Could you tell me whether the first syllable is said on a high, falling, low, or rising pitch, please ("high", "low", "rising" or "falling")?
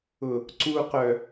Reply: low